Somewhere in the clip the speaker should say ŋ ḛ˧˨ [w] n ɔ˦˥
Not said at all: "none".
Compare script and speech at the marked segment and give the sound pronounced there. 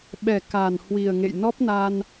j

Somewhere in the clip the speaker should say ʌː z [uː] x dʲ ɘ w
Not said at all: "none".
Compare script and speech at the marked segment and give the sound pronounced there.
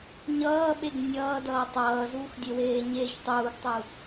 uː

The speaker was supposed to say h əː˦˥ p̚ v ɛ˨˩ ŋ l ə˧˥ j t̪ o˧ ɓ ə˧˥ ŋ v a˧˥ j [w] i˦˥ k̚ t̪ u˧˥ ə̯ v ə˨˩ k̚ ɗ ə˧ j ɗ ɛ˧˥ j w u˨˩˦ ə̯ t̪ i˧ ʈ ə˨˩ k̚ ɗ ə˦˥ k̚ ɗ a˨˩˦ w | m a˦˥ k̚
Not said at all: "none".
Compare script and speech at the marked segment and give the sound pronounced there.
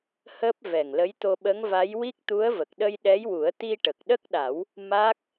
w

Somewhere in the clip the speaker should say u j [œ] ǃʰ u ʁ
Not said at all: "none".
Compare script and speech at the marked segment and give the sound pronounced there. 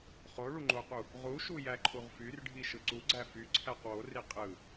æ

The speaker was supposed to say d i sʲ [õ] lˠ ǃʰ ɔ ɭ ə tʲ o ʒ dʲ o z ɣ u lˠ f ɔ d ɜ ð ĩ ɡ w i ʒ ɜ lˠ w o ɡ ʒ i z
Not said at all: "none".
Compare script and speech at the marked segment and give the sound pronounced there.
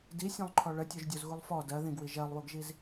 õ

